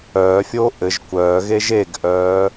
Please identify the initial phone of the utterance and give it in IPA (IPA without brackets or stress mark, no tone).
œː